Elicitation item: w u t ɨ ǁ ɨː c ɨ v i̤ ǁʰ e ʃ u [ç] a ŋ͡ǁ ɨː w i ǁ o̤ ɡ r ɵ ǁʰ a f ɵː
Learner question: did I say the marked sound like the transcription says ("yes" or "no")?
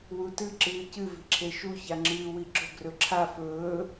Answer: yes